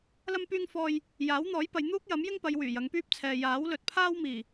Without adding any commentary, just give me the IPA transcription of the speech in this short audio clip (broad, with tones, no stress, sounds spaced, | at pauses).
l ɐ˥ m p yː˥ ŋ f ɔː˧ j | j aː˨˥ w n̪ ɔː˨˥ j p ɐ˨˧ j n̪ uː˥ k̚ j ɐ˨˥ m j ɪ˥ ŋ p ɐ˨˧ j w yː˨˩ j ɐ˨˧ ŋ p yː˥ p̚ t͡sʰ ɛː˨ j aː˨˥ w l ɵ˨ t̚ pʰ aː˥ w m iː˨˩